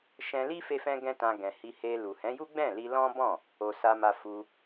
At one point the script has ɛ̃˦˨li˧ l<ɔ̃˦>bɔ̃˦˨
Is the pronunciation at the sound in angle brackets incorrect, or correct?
correct